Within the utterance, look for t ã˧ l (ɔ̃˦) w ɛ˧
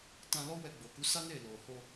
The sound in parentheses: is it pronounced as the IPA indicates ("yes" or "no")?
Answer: no